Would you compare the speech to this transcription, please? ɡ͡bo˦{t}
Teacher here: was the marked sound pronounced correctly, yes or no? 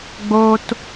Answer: yes